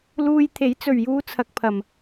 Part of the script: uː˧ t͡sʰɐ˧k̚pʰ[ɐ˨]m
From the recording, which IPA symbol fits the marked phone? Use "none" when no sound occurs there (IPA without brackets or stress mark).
ɐ˨